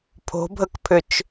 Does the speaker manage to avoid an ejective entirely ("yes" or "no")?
yes